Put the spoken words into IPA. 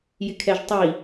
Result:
jɪkʰɛʒtˤi

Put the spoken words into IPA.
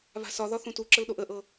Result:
βa̤sɒðɒ θũtuǁəl ɗoʔəʔɤ

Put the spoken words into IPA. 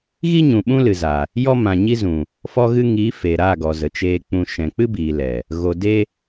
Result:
ɣi˦ɲũ˨ ɓũ˦lɨ˨za˨ | jɔ˦mã˨ɲi˦zũ˨ | fɔ˧ɣɨ˧ŋiː˨˦ feː˨ɾaː˦˨ɡɔ˨zə˨ t͡ʃeː˧k͡pũ˧ ʃɛ̃˨k͡pɨ˦biː˨lɛ˨ | ɣo˨de˦

